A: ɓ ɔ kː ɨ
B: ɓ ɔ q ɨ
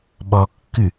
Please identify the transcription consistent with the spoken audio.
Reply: A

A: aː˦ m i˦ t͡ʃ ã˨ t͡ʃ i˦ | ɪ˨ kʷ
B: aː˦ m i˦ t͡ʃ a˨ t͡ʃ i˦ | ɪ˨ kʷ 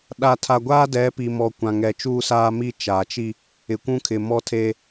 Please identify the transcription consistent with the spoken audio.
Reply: B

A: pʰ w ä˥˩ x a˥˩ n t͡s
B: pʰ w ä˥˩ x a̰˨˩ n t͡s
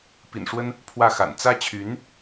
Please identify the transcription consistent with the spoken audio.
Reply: B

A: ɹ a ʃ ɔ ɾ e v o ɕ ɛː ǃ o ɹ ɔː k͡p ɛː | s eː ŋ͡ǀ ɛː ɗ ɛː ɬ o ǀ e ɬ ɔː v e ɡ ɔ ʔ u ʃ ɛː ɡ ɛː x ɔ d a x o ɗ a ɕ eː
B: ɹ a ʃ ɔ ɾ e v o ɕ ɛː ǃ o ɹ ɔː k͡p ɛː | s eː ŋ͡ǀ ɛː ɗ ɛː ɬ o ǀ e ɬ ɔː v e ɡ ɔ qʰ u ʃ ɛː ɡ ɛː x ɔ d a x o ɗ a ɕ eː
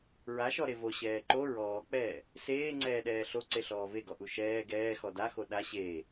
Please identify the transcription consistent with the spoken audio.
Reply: A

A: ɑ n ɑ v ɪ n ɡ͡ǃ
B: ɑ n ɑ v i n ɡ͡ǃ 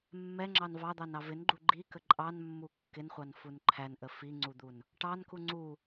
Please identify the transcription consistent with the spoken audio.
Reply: A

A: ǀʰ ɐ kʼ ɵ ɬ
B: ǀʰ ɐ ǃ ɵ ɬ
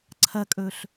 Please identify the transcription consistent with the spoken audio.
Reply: A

